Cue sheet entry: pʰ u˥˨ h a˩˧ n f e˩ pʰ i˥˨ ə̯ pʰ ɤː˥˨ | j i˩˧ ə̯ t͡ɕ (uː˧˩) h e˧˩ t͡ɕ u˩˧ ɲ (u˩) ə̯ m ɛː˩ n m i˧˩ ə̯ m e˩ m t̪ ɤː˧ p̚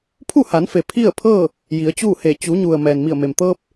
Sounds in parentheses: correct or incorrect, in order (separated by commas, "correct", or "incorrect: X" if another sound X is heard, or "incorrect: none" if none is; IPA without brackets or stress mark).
incorrect: uː˥˨, correct